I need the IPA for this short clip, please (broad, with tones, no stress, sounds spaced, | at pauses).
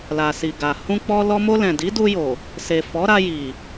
l a˨ s i˨ ɡ a˨ h ũ˧ k͡p ɔ˧ l ɔ˧ m o˧ l ɛ̃˨ d i˨˦ d u˧ j o˨ | s e˨ f ɔ˨˦ ɾ a˧ j i˨